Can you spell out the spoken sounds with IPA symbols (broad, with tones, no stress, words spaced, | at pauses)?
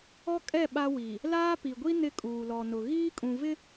ɔ˦kʼɛ˦˨ ɓa˦wi˨ | laː˦pi˨ɡʷi˦ nɪ˦kʼuː˨lɔ˨nʊ˨ ɣiː˦kʼũ˨vɪ˦